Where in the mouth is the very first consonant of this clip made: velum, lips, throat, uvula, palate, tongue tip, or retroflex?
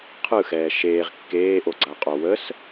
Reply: uvula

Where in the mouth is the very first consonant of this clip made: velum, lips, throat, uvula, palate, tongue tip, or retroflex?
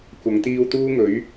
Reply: velum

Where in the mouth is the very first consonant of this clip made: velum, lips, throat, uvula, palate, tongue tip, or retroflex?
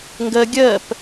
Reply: velum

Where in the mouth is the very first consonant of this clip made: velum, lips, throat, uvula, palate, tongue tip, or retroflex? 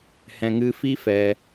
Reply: throat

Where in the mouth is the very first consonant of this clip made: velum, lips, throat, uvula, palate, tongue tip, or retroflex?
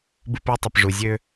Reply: lips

